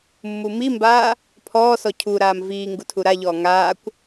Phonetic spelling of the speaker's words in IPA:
mː u m i m b aː | pʰ ɔː s ɔ cʰ u ɾ aː m v iː ŋ ɡ u tʰ u ɾ a ʎ ɔː ŋ aː kʷ

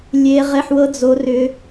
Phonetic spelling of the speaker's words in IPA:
lʲ e˦˥ ʁ e˧˥˧ ħ w ɤ˦˥ d͡z o˦˥ r ʏ˦˥

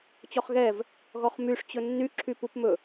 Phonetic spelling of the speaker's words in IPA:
t͡ɕ ɔ χ ɣ ɛ v | ɣ ɔ χ m y ʂ t͡ɕ ɵ nː y ǁʰ y p u p m ɵ

